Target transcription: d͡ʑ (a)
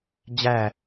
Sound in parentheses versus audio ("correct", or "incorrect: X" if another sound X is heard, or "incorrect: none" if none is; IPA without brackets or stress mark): incorrect: æ